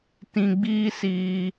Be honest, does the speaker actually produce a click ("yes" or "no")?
no